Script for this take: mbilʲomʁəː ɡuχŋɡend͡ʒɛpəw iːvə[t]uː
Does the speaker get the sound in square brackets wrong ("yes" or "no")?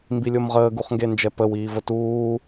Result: no